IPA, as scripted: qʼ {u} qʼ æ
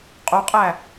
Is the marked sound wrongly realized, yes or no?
yes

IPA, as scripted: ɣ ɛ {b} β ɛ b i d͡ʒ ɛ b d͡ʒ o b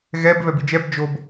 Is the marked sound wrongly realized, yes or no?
no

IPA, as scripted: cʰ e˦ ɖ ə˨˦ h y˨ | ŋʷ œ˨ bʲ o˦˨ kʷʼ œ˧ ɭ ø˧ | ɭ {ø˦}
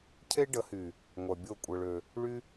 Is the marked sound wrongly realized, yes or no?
yes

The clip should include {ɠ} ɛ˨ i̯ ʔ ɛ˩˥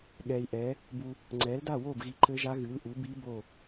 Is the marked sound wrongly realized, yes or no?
no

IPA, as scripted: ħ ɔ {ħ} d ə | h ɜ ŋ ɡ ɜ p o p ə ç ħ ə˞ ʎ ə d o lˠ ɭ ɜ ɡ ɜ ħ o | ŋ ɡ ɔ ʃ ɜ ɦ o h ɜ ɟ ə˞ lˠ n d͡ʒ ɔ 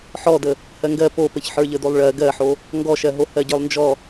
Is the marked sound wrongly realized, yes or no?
yes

